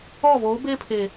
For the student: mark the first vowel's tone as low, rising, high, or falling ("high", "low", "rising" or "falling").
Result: falling